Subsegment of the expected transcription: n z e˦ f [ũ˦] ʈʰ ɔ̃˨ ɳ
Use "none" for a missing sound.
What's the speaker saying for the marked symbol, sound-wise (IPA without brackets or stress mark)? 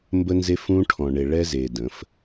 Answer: ũ˦